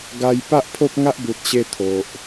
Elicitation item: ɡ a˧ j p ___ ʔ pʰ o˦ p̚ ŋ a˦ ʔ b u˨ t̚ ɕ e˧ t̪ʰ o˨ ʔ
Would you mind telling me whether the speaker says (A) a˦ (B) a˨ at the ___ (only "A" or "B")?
A